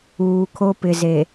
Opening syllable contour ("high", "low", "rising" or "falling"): low